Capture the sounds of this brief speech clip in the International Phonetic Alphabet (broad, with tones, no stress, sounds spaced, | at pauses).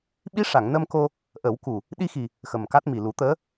ɓ i˧˥ ʂ a˨˩˨ ŋ n ə˧ m k o˧ | ʔ ə˨˩˦ w k u˨˩ | ɗ i˧ x i˨˩ | x ə˨˩ m k a˦˥ t̚ m i˨˩ l u˨˩˦ t̪ əː˧˥